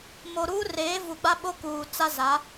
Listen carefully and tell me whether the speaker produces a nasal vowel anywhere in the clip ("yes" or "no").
no